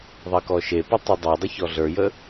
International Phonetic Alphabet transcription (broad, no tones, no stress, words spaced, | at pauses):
ðˤɜkɔʃepə tˤɤdˤɤdˤə çɔɮə˞jə